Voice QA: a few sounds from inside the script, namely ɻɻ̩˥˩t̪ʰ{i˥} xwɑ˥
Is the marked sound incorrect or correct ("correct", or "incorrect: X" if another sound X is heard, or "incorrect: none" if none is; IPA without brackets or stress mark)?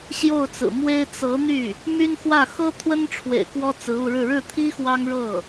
correct